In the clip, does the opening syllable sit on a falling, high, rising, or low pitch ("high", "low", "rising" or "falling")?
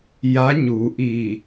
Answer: rising